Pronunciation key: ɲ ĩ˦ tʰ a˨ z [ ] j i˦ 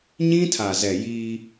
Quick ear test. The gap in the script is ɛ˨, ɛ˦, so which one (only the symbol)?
ɛ˨